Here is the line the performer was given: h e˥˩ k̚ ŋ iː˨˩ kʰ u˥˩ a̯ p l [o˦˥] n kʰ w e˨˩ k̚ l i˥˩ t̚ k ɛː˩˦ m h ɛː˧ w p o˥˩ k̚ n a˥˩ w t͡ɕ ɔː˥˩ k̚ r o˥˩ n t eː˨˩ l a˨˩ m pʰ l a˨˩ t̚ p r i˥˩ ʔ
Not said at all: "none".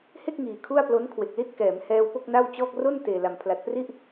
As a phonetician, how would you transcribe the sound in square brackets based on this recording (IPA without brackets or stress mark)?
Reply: o˦˥